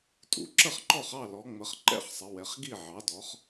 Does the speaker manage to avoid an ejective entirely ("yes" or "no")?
no